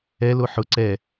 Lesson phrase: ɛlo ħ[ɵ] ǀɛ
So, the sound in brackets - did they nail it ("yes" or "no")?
no